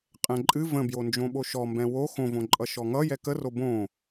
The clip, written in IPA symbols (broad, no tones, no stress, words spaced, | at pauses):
qʼɛ̃ǃʼɨ və̃bjond͡ʒõɓo ʃɔmbɛ̃ wo xõvõǃʼʌ ʃɔŋʌ jɛkəro bõ